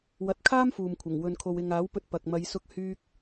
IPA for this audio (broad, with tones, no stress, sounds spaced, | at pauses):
w ɐ˨˥ t̚ kʰ aː˥ m f uː˨ m kʷʰ ɐ˨˩ ŋ w ɵ˨ n kʰ o˨ w ɪ˨ ŋ aː˨˥ w p ɵ˧ t̚ p ɐ˨ k̚ m ɐ˨˧ j s ʊ˧ k̚ h yː˧ k̚